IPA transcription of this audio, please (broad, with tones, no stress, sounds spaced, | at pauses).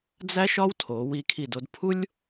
d͡z æ˥ ʃ ɒ˥ w tʰ o˩˧ w i˧ kʰ i˧˩ d o˧ d pʰ u˥ lʲ